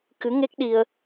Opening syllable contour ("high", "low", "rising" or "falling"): rising